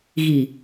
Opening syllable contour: low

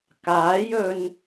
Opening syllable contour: rising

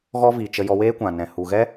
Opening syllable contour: high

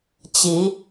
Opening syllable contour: rising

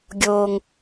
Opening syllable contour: low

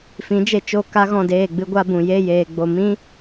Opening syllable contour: rising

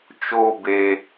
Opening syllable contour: high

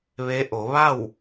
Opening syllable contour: rising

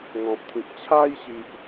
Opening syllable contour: low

